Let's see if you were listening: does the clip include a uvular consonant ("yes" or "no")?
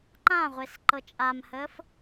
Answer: yes